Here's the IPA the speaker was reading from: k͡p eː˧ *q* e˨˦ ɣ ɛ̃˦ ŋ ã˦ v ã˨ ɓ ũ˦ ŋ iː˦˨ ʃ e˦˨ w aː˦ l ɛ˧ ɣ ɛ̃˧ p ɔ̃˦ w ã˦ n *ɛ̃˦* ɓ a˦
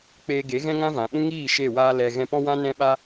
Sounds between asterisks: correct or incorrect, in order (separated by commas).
incorrect, correct